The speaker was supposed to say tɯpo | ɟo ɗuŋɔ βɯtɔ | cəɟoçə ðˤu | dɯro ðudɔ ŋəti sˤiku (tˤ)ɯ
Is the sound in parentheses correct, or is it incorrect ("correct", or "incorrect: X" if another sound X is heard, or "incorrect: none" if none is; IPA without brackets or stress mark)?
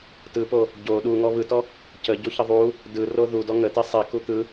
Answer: incorrect: t̪